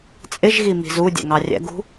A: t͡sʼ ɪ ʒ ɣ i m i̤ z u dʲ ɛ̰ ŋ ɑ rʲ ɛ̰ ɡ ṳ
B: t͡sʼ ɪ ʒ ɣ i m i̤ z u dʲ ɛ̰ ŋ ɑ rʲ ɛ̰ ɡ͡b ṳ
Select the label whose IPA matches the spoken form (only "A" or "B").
A